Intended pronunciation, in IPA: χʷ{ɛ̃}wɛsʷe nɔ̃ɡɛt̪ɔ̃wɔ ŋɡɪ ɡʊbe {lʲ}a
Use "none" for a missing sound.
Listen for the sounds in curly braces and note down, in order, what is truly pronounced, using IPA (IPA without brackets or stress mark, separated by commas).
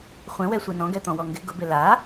ɛ̃, l